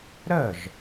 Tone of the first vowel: falling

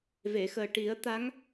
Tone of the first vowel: low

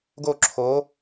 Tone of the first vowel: falling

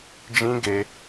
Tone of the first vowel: high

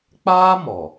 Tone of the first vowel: high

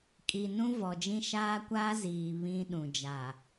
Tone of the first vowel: low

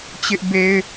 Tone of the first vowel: high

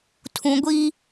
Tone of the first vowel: low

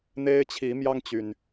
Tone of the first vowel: high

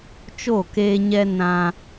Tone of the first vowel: falling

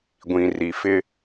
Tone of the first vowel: low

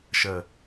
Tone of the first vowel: low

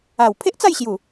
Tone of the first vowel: low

